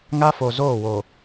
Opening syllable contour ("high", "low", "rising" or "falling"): high